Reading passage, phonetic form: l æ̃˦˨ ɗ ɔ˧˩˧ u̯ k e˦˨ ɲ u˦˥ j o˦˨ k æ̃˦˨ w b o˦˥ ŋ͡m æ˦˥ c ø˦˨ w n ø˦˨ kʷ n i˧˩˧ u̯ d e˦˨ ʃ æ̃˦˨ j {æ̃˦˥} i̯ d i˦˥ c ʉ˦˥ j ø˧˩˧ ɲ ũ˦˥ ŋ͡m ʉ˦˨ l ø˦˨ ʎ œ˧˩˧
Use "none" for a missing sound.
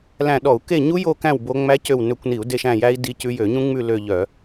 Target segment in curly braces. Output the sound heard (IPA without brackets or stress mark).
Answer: æ˦˥